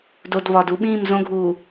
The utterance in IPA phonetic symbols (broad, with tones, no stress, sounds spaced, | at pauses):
d o˨ d β ɒ˨ d u˦ ɓ ĩː˦˨ m z õ˦ ɡʱ uː˨